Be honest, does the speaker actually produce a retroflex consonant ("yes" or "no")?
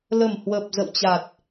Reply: no